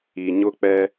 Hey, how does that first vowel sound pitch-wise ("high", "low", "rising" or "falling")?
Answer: low